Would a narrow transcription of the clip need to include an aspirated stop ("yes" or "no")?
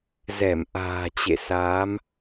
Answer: no